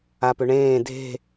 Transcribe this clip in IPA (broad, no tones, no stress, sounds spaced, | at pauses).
a p ø ɳ ẽː dʱ e̤